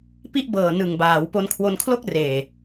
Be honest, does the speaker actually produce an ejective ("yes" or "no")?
no